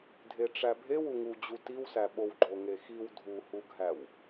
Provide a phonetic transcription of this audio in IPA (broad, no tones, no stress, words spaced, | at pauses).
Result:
dʱeʈ͡ʂæbʱew uŋud͡ʑu tiwsæ ɓowɡ͡ǃoŋexiw dʱuhuɡʱæw